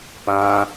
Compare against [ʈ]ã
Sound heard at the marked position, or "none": p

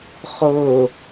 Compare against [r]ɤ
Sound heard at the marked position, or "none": χ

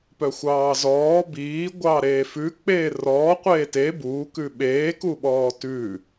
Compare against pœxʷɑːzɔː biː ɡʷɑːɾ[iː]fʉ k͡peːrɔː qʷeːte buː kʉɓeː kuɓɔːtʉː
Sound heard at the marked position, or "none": eː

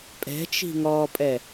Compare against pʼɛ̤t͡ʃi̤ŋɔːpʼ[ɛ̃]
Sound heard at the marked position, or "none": ɛ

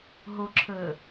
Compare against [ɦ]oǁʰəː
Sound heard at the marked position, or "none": ɦ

